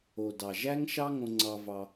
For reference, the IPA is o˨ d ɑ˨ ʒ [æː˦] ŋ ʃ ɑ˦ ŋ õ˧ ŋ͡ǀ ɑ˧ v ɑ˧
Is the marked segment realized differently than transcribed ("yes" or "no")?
yes